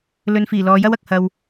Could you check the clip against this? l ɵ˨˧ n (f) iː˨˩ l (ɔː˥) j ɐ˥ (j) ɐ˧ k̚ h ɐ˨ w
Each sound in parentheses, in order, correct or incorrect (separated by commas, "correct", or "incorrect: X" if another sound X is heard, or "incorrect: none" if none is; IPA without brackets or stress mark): correct, incorrect: ɔː˨˧, incorrect: w